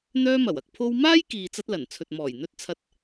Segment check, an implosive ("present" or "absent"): absent